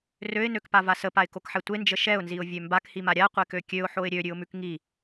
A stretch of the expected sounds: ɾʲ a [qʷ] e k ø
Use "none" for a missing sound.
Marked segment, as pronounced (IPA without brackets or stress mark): qʷ